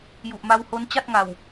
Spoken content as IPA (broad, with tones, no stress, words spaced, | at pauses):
ju˨˩ʔma˦˥who˦˥n t͡ɕa˥˩t̚ŋa˨˩w